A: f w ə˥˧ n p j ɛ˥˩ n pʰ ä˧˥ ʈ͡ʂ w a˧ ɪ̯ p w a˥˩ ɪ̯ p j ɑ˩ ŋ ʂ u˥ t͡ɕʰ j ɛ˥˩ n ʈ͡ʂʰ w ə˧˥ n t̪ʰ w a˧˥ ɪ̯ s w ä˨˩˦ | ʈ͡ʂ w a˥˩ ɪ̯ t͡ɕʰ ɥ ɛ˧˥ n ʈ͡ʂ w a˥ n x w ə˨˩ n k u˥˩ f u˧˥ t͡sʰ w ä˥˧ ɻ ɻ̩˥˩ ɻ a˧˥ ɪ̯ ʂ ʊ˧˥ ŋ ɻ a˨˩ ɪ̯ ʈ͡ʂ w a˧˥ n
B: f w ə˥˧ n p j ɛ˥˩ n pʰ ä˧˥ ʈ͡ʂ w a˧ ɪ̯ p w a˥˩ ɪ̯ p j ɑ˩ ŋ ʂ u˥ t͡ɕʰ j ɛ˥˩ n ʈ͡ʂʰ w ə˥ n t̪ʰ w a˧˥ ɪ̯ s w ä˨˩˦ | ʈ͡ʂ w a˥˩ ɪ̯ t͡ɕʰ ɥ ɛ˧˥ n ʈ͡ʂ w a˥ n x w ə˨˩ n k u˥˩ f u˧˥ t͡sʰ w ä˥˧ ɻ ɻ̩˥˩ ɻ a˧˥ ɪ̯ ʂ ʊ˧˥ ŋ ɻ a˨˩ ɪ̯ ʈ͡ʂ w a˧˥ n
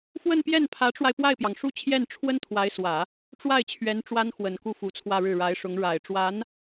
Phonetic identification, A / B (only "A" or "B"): B